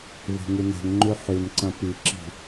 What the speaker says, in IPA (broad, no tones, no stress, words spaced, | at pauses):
ve̤ŋʉne̤ŋŋ͡ǃʉ ħʉnǀɐ̃ piǁi̤